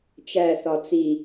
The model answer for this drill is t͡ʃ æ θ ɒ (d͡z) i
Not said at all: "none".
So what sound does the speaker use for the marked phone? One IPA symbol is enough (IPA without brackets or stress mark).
t͡s